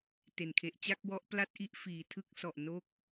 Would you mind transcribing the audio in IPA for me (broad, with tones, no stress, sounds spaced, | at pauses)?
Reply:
t e˩˦ n kʰ e˨˩ ʔ t͡ɕ a˥˩ k̚ w ɔ˦˥ ʔ p l a˥˩ t̚ ʔ i˥˩ ʔ f iː˨˩ tʰ ɯ˦˥ k̚ s ɔ˨˩ ʔ n o˦˥ k̚